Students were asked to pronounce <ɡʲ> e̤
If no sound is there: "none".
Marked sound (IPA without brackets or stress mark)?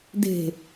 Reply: d